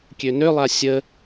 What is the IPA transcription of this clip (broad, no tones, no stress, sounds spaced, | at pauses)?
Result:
kʲ ø n ø lˠ a sʲ ə